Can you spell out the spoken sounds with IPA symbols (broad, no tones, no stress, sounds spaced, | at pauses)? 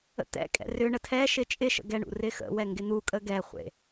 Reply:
ə̰ t̪ ɛ̰ kʼ ɛ̰ r ʏ ɳ ə tʰ ɛ ʃ ɪ t͡ʃʼ ɪ ʃ ə̰ ɡ ɛ ɳ ṵ r ɪ x ə̰ w ɛ ŋ ɡ ɪ n̪ u kʼ ə ɡ ɛ χʷ ḛ